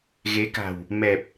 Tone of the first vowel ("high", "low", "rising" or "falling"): rising